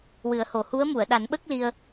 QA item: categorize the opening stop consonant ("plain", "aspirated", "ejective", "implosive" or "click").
implosive